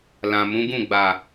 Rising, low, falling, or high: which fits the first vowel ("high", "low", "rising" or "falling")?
low